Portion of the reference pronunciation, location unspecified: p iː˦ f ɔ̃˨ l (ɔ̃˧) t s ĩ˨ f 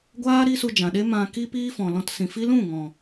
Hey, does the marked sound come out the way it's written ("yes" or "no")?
yes